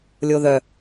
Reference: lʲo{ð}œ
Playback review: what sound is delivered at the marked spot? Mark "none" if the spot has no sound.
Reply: ð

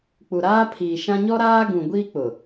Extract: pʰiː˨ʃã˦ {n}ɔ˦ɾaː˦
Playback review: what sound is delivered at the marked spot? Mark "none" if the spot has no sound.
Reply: ɲ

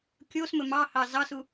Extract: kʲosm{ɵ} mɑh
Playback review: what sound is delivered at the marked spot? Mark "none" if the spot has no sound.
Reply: ɵ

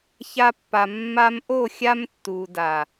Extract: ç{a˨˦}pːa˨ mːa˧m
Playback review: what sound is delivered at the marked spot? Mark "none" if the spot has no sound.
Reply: a˧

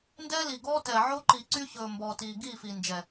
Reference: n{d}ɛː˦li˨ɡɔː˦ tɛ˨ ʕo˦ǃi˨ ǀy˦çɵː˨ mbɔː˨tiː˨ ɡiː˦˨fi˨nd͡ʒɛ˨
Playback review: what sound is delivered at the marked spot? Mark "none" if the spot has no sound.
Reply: d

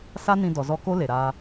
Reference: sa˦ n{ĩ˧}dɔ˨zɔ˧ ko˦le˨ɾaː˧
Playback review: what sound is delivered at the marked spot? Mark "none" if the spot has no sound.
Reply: ĩ˧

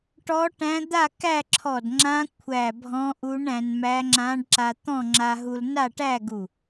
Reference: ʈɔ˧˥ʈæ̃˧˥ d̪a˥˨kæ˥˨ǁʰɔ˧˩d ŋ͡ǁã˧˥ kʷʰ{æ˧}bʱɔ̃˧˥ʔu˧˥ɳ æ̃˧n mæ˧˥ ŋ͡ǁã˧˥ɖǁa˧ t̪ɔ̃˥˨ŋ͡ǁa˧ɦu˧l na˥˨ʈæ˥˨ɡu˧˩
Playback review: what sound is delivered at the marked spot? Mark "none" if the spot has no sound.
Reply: æ˧˩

